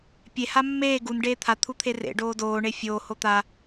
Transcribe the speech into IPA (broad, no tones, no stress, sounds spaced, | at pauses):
pʲ e h a mː eː ɡ u n ɖ eː t̪ʰ a t̪ʰ u t̪ʰ e r ḛ ɖ oː d oː ɳ e fʲ oː h o t̪ a